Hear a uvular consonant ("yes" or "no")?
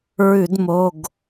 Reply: no